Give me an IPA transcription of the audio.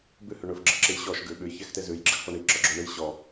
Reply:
b ʉ h ʉ ɳ ɵ f ɡ͡ǁ ə ǁ ɨ j ɕ ɔ ʃ ɡ ʉ ɓ ʉ j ç ɛ x t e z ʉ j ɡ͡ǁ ɘ x f ɔ ɳ i ǁ ɔ ɡ͡ǁ o ɳ ɨ j ɕ ɔ

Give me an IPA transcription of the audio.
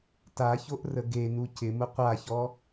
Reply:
t a ç o ʔ r ə ɡ e n u c ɪ m ʊ qʷ a ç ɔ

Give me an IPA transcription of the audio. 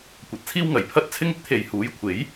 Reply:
kʷ ɐ˨˥ t̚ t͡sʰ iː˥ w ŋ ɐ˨˩ j pʰ ɐ˥ t̚ t͡sʰ ɪ˥ ŋ ɪ˥ k̚ t̪ʰ e˨ j h uː˨˥ j kʷʰ e˨˥ j

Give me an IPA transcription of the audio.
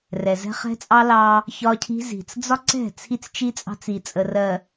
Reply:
r ɛ˨ z ɛ̤˦ χ ɛ̤˦ t͡sʼ ɑ˦ l ɑ˦ | ç ɒ˦ cʰ i̤˦ z i̤˨ t͡s d͡z ɒ˦ ǀ ɛ̤˦˨ t͡sʰ i˦ t͡s t͡ʃ i˦ t͡sʼ ɑ̤˦ t͡s i˨ t͡sʼ ə˨ r ɜ˨

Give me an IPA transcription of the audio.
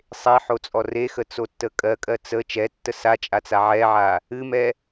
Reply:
sˤ e ħ o t͡sʼ ɔ r e x ə t͡s o tː ə kʼ ɜ kʼ ɜ t͡s ə t͡ʃ ɛ tː ə s a t͡ʃʼ a t͡s a ʕ ɛ ʕ a | ɨ m ɛ

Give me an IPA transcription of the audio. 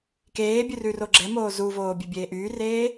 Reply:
k eː bʲ ʉ r ʉ r o ɡ͡ǁ ɛ m oː z u v oː bʲ e bʲ eː ʔ yː r eː

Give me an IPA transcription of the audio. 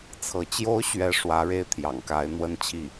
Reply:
t͡sʰ ɤ˧˥ t͡ɕ j o˧˥ ʊ̯ ɕ ɥ ɛ˧˥ ʂ w ä˧˥ ɻ e˥˩ ɪ̯ t̪ʰ j ɑ̰˨˩ ŋ k a˧˥ ɪ̯ n̪ w ə˥ n t͡ɕʰ i˥˩

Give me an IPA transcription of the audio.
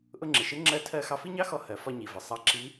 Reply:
ʔ ʊ˧ ŋ͡ǁ ɪ˩ ʃ ɪ˧˥ ŋ͡ǁ ɜ˧˥ tʰ ɜ˧ x ɑ˧ f i˥ ɲ ɑ˥ x ɔ˧ h ɜ˩˧ f ɒ˧ ɲ i˩ v ə˩ sˤ ɑ˧ ǁ i˧˥

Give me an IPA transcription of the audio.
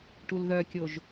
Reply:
ʈ u l ð œ kʲ o ʒ

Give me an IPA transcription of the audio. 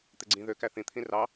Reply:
t̪ e ɡ͡ǀ ĩ ð ø k æ θ ĩ t̪ʰ ĩ r ɑ

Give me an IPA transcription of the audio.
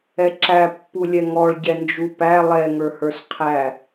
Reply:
ɛ ǁ æ pː u lʲ ɛ ŋ ɔ ɭ ɟ ɛ n d͡ʒ u p æ lˠ ɛ ŋ ə˞ h ə˞ s qʰ æ

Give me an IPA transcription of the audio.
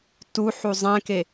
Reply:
t u ħ u zˤ ɛ̃ k e

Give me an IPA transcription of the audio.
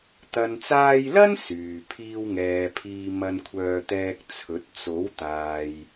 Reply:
t̪ ɐ˨ n t͡s aː˧ j l ɐ˥ n s yː˨ pʰ iː˧ w ŋ ɛː˨ pʰ iː˧ m ɐ˧ n kʷʰ œː˧ t̪ ɛː˧ k̚ t͡sʰ ɵ˨˥ t̚ t͡s o˨˥ w t̪ aː˨ j

